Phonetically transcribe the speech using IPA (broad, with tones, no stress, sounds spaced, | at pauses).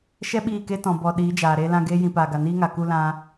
ʃ ɛ˦ ɓ iː˦˨ k e˦ t ɔ̃˨ b ɔ˨ ɗ iː˨˦ d͡ʒ aː˨ ɾ eː˧ l ã˧ ɡ eː˦ j ĩ˧ p aː˨ ɡ a˨ n iː˦ ŋ a˨ k u˧ l ã˧